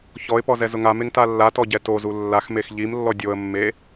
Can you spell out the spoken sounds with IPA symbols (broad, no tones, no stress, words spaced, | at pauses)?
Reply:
çɔɪ̯pɔ zɛzʊŋameŋ talːatɔ ɟɛtozu lːaxmex ʎimlːɔ dʲoə̯mːe